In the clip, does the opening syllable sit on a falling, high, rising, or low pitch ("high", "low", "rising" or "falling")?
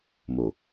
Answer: low